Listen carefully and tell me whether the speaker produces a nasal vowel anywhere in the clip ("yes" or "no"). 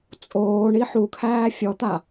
no